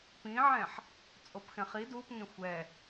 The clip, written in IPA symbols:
p ĩ ʕ ɛ̃ ħ | t͡sʼ o p x ɛ̃ χ i d u p ŋ ẽ xʷ ɛ

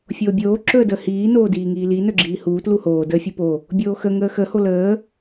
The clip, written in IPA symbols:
fʲ oː bʲ oː ǁ ɵ ə̯ d əː h iː n oː d iː ŋ iː l i n ɵ ɡ͡ǁ iː h uː t l u h oː d əː fʲ u p o | bʲ oː x ə ŋ əː x ə h o l əː

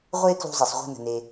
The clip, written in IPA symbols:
ʁʷ e˥ k l ṳ˥ zˤ i˩ sˤ ʁʷ e̤˥ n ə̤˩ n e˩

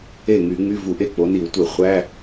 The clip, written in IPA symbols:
e˥˩ ŋ y˧˩˧ ŋ͡m y˧˥˧ v u˧˩˧ ʔ e˥˩ k͡p o˨˦ n i˧˩˧ w tʷ e˧˩˧ χʷ æ˧˥˧

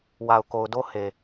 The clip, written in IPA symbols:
w a˨ ʊ̯ k o˨ ʊ̯ d o˦ h e˨

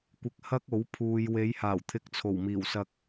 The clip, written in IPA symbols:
kʷ ɪ˧ k̚ h ɐ˥ k̚ o˨˥ w pʰ uː˨ j w e˨˧ j h aː˨˩ w t̪ʰ ɪ˨˥ k̚ t͡sʰ o˨˩ w m iː˨˩ w s ɐ˧ k̚

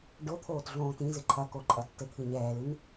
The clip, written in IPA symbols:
ɖ o t̪ʰ oː t ɮ õː t ĩ z ɨ ǃʰ ɐ k o ǃʼ ɐ tː ɘ t̪ʰ ɨ ɲ ɛː l ɨ n

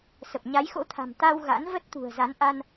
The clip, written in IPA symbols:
s ə˨˩ p̚ ɲ a˨˦ j x o̰˧˥ t̪ʰ a̤˨˩ m t̪ a˧ w ɣ a̰˧˥ n v ə˦˥ t̚ t̪ ṳ˨˩ ə̯ z a˨˦ n ʔ a˧ n

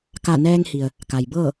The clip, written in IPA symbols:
k a˧˩ n ɛː˧ ŋ h i˩ ə̯ | k a˩ j b ɤː˥˨

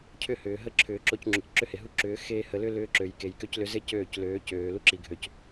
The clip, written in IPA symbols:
cʰ ʏ˦˨ h ʏː˨ ɦ ə˦ ǁʰ ʏː˨ ǁ o˦ c ŋ͡ǁ u˨ c ǁ ʏ˦ h e˨ ɦ u˦ ǁ ʏː˨˦ x eː˧ h ə˨ l ʏ˦ l ʏː˦ ǁ ø˨ j k e˨ j k ø˦ c l ʏ˦ z e˦ c øː˦˨ c l øː˨˦ c øː˨ l u˦ ǁ i˨ ɡʱ ø˨ c

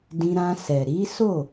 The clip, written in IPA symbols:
d ĩ˧ ɾ ã˧ s ɛ˨ ɾ i˨˦ s o˦˨

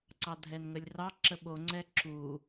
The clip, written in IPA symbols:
ǀ ɑ dʱ ɛ n ŋ ə lʲ r ɑ ǁ ə ɓ o ŋ͡ǀ ɛ ǁ u

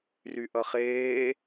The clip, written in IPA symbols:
r y ʔ ʌ χ eː

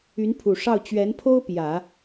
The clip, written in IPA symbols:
y˧˥ n pʰ u˨˩ ʂ ɑ˥˩ ʊ̯ t͡ɕ ɥ ɛ˧˥ n pʰ o˥ ʊ̯ p j ä˨˩˦

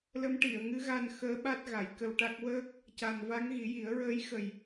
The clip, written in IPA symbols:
l ə˧˥ m ʈ i˨˩˨ ə̯ ŋ ɨ˧˥ ɣ a˧ n x əː˧˥ ɓ a˦˥ t̚ ɣ a˨˩˦ j k ə˧ w ʈ a˦˥ k̚ w əː˦˥ k̚ | c a˨˩ n v a˧˥ ŋ ɣ i˨˩˦ j i˨˩˦ ə̯ ɹ əː˧˥ j x ə˨˩ j

